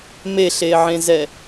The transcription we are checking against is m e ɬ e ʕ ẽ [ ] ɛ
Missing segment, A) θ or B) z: B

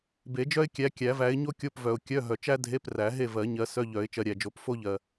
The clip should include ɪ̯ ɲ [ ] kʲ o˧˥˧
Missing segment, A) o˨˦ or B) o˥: B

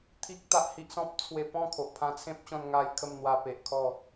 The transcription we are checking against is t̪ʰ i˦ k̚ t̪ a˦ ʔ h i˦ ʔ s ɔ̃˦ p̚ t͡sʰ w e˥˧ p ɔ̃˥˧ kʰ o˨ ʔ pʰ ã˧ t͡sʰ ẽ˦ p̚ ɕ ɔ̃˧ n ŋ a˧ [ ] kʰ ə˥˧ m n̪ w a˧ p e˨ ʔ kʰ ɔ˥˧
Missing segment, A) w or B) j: B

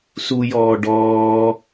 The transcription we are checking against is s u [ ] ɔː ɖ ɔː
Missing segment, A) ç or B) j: B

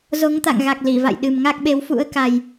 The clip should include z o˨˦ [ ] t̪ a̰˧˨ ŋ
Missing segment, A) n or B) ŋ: B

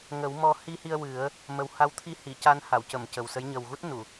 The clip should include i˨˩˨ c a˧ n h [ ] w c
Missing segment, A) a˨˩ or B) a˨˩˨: B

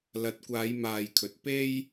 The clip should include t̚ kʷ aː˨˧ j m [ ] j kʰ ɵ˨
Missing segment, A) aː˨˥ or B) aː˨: B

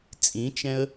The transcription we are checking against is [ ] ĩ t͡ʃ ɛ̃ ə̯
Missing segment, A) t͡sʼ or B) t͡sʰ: A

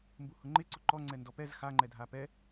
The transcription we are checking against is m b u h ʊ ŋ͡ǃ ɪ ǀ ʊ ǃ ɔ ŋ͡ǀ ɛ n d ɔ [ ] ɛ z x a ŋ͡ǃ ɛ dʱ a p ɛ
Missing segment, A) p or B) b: A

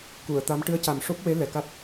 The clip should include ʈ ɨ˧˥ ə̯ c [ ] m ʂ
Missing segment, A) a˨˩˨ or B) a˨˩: B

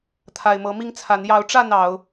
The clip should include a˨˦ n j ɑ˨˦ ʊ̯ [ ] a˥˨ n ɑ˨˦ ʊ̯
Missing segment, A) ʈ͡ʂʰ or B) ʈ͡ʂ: B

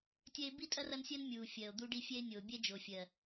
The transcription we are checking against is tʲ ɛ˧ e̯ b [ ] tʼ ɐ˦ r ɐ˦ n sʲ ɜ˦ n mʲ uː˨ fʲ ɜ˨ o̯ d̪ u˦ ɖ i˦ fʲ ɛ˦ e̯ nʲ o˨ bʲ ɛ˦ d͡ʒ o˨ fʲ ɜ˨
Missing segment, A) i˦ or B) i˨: A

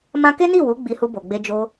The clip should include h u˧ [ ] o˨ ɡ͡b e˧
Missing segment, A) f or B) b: B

